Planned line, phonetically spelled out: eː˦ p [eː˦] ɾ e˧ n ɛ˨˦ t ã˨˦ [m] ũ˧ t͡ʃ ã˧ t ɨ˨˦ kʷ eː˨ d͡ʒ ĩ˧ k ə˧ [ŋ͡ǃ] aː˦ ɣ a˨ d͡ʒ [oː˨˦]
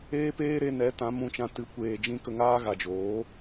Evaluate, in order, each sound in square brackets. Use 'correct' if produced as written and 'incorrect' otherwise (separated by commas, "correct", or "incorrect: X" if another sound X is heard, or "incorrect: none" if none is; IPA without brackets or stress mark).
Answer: correct, correct, incorrect: ŋ, correct